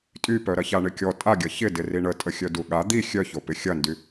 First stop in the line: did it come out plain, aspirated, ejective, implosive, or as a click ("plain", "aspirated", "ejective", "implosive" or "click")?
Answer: ejective